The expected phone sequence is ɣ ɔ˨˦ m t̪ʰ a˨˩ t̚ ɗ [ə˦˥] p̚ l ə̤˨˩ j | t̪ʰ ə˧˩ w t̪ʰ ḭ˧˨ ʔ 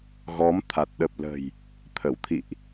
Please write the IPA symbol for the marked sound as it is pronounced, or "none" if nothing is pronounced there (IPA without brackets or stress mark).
ə˨˩